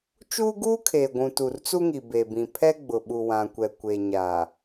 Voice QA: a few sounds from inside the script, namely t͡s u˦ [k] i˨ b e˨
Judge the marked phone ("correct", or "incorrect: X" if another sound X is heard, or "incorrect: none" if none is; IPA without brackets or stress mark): incorrect: ŋ